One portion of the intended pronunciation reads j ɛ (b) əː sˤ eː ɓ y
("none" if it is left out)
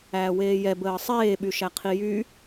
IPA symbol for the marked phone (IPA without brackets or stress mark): b